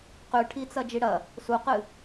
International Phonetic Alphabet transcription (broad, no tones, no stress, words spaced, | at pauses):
qʉʈʰit͡sɐ d͡ʒiɽɐ | suqɨ